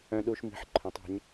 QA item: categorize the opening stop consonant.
implosive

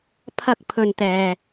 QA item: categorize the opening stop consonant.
aspirated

